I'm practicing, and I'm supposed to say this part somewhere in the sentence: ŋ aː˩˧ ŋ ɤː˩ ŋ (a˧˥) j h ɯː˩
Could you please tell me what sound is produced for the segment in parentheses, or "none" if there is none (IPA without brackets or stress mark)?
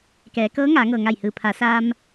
a˧˩